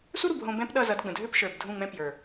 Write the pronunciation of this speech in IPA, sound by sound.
s u˦ ɾ u˨ b ɦ õ˧ b ɛ̃˦ p ɗ ʌ˦˨ z ʌ˨˦ d ɡ͡b ə̃˨ dʱ ø˦ p ʃ ə˞˨ b dʱ ũ˦˨ ŋ͡m ɛ̃˦ p j ə˞˨

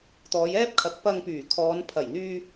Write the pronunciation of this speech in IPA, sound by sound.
t̪ ɔː˨˧ j ɛː˥ p̚ kʰ ɐ˨˥ k̚ p ɐ˧ ŋ p yː˨˩ kʰ ɔː˨˧ n pʰ ɐ˨˩ j n̪ yː˧

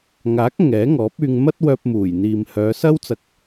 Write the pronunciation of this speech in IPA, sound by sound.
ŋ aː˨˥ k̚ ŋ ɛː˨˥ ŋ ɔː˨˥ p̚ yː˧ ŋ m ɐ˥ t̚ w œː˧ p̚ m uː˨˩ j n̪ iː˨ m h œː˨˧ s ɐ˥ w t͡s ɐ˧ k̚

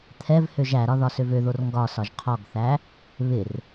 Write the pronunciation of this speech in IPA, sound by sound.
t̪ʰ ɛ v h ø ʒ æ ɾ ɒ ð ɒ s ø v ø ð o r ŋ ɡ ɒ s ɒ ʒ qʰ ɔ ɡ θ æ | β ɪ r

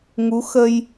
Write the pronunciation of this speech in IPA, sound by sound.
ŋ u˧˥ x ə˧ j

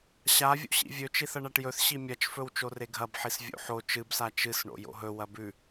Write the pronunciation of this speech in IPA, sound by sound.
ɕ a vʲ o̰ ɕ ḭ vʲ ɵ t͡ʃ i θ ɐ ɳ a ʈ j ɵ θ ɕ i mʲ ɐ t͡ʃ f ɵ w t͡ʃ o r e ɡʱ ɐ b ħ i s vʲ o̰ ħ o t͡ʃ ɨ b s a t͡ʃ ɨ s ɳ o̰ j o̰ ɦ ɵ w ɐ b ʉ

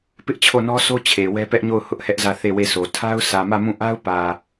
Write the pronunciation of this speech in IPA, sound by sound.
p ɪ˦ ʔ t͡ɕʰ o˦˨ n ɔ˦ sʰ o˦ t͡ɕʰ e˨ w ɛ˦ p ɛ˦ ʔ ɲ o˦˨ ʊ̯ h ʊ˦ ʔ h ɛ˦ ʔ z ä˦˨ θ e˦˨ w e˦˨ sʰ o˨ tʰ a˦ ʊ̯ sʰ ä˨ m ä˦˨ m ũ˦˨ ʔ a˦ ʊ̯ p ä˨

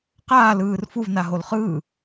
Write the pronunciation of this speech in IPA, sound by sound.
q aː l ɯː r f u v n a ɦ o l χ ɯː

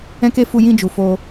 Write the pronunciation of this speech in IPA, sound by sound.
ɛ̃˦ k e˦ f u˧ j ĩ˧ d͡ʒ u˨ f o˧

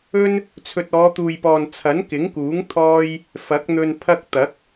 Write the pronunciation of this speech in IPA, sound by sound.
ɵ˥ n | t͡sʰ ɵ˨ t̚ ɔː˨˧ t̪ uː˨ j p ɔː˨ n t͡sʰ ɐ˨˥ n k ɪ˨˥ ŋ k uː˨˥ ŋ t̪ʰ ɔː˥ j | f ɐ˨˥ k̚ n̪ ɵ˧ n pʰ ɐ˥ k̚ t̪ ɐ˨˥ k̚

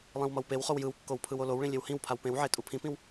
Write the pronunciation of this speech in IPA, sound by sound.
lˠ ĩ w m ʌ w p e w χ o w j ɯ w kː o w pʰ ɯ w o l o w ɭ ĩ lʲ e w h ĩ w pʰ a w p ẽ w ʕ e tʼ u pʰ ĩ p ĩ w

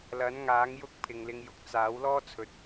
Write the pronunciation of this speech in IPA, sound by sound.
l ɐ˨˥ n ŋ aː˨˥ ŋ j ʊ˥ k̚ pʰ ɪ˨ ŋ l ɪ˧ ŋ j ʊ˨˥ k̚ t͡s aː˨˥ w l ɔː˥ t͡sʰ ɵ˨ t̚

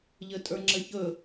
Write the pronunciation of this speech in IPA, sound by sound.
ʎ ɘ tʼ ə˞ ŋ͡ǁ ɘ ç ɵ

